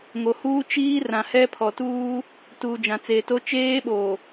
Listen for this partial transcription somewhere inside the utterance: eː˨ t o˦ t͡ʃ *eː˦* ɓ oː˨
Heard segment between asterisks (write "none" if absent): eː˦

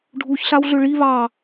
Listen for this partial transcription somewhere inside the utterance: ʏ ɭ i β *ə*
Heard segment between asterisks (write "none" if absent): ɑ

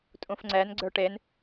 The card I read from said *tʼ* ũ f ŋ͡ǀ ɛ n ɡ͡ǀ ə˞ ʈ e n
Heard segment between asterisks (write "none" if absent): tʼ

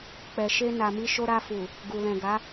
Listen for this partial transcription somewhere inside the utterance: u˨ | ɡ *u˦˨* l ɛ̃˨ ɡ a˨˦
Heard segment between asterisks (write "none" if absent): u˨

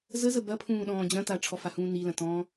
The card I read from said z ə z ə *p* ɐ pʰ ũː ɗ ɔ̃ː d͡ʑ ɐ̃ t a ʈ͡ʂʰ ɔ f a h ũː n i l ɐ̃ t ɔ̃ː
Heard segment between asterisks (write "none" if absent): b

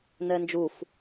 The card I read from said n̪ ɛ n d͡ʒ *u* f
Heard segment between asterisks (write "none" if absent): u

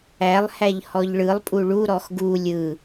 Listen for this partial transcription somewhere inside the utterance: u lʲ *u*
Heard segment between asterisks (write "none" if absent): ɯ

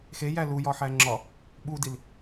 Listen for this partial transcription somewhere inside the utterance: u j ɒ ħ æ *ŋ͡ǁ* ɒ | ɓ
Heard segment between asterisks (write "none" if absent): ŋ͡ǁ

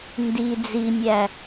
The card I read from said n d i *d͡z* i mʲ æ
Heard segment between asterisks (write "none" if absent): d͡z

